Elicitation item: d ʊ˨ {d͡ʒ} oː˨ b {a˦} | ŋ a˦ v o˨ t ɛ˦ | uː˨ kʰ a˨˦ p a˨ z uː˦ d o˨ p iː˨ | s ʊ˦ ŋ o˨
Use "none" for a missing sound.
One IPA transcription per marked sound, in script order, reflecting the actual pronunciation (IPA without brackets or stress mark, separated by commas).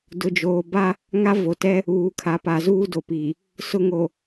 d͡ʒ, a˦